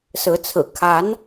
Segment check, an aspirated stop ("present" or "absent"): present